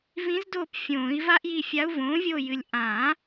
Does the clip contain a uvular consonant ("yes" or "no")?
no